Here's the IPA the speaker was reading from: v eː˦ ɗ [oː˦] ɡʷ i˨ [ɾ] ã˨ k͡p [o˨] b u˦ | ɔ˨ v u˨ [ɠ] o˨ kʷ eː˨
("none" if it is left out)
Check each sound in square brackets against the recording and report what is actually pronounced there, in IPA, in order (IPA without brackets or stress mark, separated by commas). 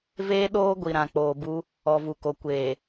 oː˦, ɾ, oː˨, k